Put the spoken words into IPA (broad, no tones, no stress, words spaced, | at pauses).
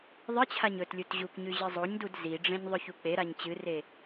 ðˤɨt͡ɕʰaɲ ɵtlʲut ʑukɲʉ ʑɨzˤoɲdud ziɖ͡ʐẽɲ ðˤɵçuk͡peɾaɲ t͡ɕɨre